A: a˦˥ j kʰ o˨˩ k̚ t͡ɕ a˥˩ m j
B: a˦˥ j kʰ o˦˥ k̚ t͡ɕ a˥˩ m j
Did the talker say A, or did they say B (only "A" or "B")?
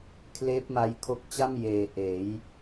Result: B